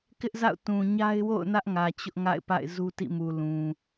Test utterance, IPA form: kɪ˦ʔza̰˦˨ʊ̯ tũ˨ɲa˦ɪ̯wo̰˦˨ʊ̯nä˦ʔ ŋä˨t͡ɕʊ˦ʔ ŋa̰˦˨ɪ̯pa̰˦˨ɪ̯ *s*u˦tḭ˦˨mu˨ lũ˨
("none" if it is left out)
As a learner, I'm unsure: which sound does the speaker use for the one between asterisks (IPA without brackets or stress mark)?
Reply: z